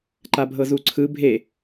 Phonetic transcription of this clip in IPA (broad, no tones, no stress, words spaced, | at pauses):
ǃabʱɤzuǀʰɯ bʱe